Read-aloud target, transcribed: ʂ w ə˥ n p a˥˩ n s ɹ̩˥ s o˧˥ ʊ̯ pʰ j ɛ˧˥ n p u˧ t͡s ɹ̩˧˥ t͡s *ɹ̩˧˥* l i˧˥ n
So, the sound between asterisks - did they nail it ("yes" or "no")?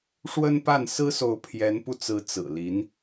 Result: no